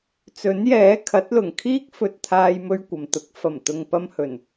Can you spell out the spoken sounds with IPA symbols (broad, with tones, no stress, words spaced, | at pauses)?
t͡sɵ˨˥njɛː˨˥ kʰɐ˨˥t̚lʊ˨˩ŋ kʰiː˥k̚fɵ˧t̚t̪ʰaː˧jmɵ˧ɥ kʷɐ˨m t̪ʊ˨˥k̚fɐ˨˩mt̪ʊ˨ŋ pɐ˧mhɵ˨˩n